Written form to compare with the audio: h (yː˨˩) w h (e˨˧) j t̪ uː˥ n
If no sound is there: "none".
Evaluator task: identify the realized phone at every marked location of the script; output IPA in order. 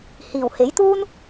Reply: iː˨˩, e˨˥

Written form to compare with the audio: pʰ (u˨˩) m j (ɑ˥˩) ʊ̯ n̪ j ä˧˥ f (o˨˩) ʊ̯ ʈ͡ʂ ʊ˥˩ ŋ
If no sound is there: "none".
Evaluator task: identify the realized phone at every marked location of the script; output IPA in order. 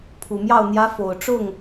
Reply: u˨˩, ɑ˥˩, o˨˩

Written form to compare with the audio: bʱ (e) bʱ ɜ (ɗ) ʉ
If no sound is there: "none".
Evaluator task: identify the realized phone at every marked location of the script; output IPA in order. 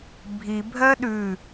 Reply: i, ɗ

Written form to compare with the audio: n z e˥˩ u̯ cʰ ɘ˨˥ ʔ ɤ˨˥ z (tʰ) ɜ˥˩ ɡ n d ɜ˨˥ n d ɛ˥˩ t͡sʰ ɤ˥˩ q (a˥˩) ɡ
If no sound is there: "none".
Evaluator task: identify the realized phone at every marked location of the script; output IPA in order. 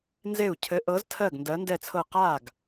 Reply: tʰ, a˥˩

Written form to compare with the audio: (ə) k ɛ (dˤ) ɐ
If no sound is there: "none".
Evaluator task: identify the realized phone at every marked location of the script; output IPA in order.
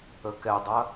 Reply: ə, dˤ

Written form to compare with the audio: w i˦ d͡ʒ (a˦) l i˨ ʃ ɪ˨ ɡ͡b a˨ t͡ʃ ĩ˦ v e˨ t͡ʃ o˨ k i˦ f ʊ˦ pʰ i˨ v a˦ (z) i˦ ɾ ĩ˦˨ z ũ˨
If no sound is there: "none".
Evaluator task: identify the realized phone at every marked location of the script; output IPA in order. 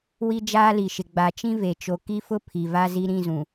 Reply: aː˦, z

